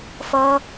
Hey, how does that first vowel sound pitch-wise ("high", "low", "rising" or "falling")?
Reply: high